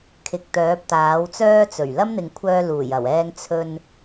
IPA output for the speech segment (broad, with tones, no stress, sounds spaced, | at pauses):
kʰ ɪ˨ k̚ t̪ œː˨˥ p̚ t̪ aː˨˥ w t͡s œː˥ t͡s ɵ˨˩ ɥ l ɐ˥ m n̪ ɪ˨ ŋ kʷʰ œː˧ l uː˨˩ j ɐ˨˩ w ɛː˧ ŋ t͡sʰ ɵ˧ n